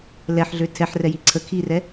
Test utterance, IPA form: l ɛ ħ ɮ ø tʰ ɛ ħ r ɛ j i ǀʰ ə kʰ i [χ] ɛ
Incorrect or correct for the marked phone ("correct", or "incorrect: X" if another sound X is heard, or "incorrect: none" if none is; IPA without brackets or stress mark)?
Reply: incorrect: r